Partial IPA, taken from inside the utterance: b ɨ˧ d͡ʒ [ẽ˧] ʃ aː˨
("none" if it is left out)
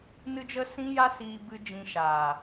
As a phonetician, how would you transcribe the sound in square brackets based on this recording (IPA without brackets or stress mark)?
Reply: ĩ˧